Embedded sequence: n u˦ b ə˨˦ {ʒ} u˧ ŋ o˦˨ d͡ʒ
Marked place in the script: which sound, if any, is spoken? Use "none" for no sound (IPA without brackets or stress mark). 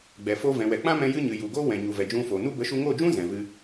ʃ